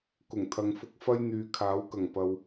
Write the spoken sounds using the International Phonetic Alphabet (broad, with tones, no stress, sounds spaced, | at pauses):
k ʊ˨˩ ŋ t̪ʰ ɐ˨˧ ŋ f ʊ˧ k̚ f ɐ˥ j n̪ yː˨ kʰ aː˨˥ w k ɐ˨˩ ŋ p ɐ˨ w